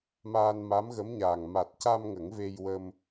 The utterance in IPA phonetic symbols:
m aː˧ n m a˧˥ m ɣ ə˧˥ m ɲ aː˨˩ ŋ m a˨˩ t̚ c a˧ m ŋ ə˨˩˦ ŋ v e˧ j w ə˧ m

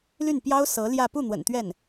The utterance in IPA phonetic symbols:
l y˥˩ n p j ɑ˥ ʊ̯ s ɤ˧˥ l j ä˥˧ p u˥˩ n̪ w ə̰˨˩ n t̪ ɥ ɛ˥˩ n

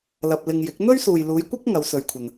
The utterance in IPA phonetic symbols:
l ɐ˧ p̚ l ɪ˧ ŋ j ɪ˨˥ k̚ n̪ ɵ˥ ɥ s uː˨ j l uː˨˧ j kʷ ɐ˥ k̚ ŋ ɐ˨˧ w s ɵ˨ ɥ kʷʰ ɐ˨ n

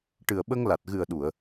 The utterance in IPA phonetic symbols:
ʈ ɨ˨˩ ə̯ ɓ ə˧ ŋ l a˨˩ t̚ ɣ ɨ˨˩ ə̯ ɗ u˨˩˨ ə̯

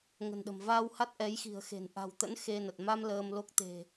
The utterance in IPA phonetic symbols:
ŋ ə̤˨˩ n ɗ ə̤˨˩ m v aː˧ w h a˦˥ t̚ ʔ ɛ˨˦ j x i̤˨˩ ə̯ x e̤˨˩ n ʔ a̤˨˩ w t̪ ə̰˧˥ n x e˧ n ə˨˩ t̚ m a˧ m l əː˧ m l o˦˥ k̚ t̪ e̤˨˩

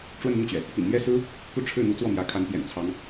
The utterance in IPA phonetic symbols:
ʈ͡ʂ w ə˥˧ n n̪ u˥˩ t͡ɕ ɥ ɛ˩ | p ḭ˨˩ n m ɥ ɛ˥˩ s ɹ̩˥ | k u˥˧ ʈ͡ʂʰ ɻ̩˥˩ n̪ u˧˥ t͡s w ɔ˥˩ m j ä˧˥ kʰ a˧˥ n p j ɛ̰˨˩ n t͡sʰ ɑ˧˥ ŋ

